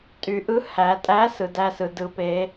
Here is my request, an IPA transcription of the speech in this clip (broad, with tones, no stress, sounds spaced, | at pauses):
tʼ y˨ ʔ ɯ˧˥ h æ˨ tʼ æ˧˥ s ɯ˨ d æ˥˨ s ɯ˨ d ɯ˧˥ p e˧˥